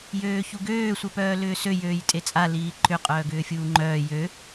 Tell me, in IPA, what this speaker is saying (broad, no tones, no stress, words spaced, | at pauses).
jøːçuɡøː sʷœpœːlʏːsø jøːjtʼet͡sʼa liːǃʏ qʼœːɡʏːfʲuːŋ͡ǃœː jø